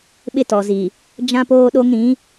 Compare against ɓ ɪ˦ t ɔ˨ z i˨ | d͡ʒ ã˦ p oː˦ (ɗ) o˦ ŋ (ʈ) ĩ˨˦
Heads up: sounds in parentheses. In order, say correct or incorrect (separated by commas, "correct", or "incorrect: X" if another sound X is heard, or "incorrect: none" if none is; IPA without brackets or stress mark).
correct, incorrect: ɾ